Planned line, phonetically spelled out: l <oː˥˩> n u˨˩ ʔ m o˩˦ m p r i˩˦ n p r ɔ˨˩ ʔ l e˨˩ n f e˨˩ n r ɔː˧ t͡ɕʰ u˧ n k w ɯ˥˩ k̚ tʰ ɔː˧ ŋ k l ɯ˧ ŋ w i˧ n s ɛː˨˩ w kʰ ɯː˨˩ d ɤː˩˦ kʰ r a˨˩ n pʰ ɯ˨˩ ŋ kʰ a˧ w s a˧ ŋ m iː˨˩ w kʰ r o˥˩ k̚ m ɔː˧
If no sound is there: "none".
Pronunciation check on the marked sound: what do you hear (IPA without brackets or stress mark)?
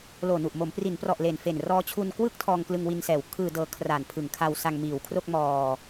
oː˨˩